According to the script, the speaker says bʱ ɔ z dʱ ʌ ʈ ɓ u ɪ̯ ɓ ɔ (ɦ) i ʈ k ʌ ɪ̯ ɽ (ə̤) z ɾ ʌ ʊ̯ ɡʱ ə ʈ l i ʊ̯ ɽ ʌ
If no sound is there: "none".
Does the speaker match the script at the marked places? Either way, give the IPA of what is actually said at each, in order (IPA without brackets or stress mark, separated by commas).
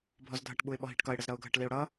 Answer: ɦ, ə